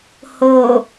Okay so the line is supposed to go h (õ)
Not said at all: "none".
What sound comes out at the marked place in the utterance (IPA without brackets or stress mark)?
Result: o